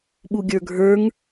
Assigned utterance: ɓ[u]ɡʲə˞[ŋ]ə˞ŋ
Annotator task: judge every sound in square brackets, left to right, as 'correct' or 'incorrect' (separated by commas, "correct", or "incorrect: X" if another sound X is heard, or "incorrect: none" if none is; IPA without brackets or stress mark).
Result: correct, incorrect: ɡʱ